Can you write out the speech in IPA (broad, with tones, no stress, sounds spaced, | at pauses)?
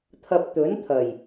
t̪ʰ ɐ˨ p̚ t̪ ɵ˨˥ n t̪ʰ ɐ˨˩ j